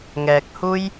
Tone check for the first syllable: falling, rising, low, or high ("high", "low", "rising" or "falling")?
low